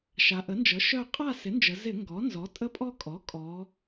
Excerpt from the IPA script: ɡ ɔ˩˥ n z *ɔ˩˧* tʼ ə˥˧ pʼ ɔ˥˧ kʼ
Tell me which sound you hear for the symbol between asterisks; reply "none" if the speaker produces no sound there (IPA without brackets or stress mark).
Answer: ɔ˩˥